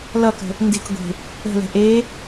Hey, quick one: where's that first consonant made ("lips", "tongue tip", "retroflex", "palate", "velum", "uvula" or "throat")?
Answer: tongue tip